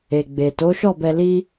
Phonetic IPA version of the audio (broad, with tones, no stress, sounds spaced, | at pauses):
e˨ ɡ͡b e˨ t o˨˦ ʃ ɔ˦˨ b ɛ˧ l i˦